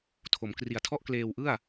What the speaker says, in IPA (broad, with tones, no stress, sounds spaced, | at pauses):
tʰ o˩˦ m k r i˨˩ a̯ tʰ ɔ˥˩ ʔ k l eː˧ w ʔ ɯ˥˩ a̯